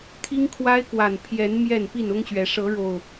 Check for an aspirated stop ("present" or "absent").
present